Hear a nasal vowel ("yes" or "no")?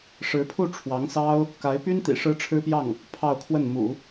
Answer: no